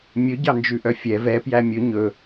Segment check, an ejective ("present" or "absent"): absent